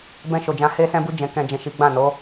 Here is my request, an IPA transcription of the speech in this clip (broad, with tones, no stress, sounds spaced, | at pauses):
b ɛ̃˧ ʃ o˨ d͡ʒ ã˧ h e˧ s ɛ̃˧ b u˧ d͡ʒ ɛ̃˨ k ɛ̃˨ d͡ʒ ɛ̃˨ ʃ i˨˦ ɡ͡b ã˦˨ n o˨˦